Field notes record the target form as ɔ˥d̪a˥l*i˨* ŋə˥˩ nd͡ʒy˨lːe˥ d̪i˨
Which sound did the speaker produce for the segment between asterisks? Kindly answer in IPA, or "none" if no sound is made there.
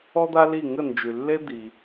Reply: i˥˩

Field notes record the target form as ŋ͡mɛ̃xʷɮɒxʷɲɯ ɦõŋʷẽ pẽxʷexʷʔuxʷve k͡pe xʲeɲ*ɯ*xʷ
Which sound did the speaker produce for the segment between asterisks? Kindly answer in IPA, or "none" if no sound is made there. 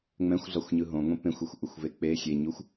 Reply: u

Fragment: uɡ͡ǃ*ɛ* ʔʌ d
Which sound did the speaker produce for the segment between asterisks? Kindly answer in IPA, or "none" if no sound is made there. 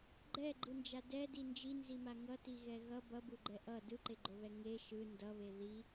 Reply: ɛ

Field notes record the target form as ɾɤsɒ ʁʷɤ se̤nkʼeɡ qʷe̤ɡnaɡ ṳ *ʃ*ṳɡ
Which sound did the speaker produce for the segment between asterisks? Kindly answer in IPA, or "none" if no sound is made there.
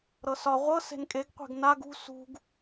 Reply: s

